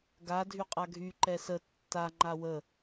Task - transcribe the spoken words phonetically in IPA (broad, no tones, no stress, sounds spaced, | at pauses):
ɡ a dʱ y qʼ a ɡʱ y ǃ ɛ s ə tː a ŋ͡ǃ a w ə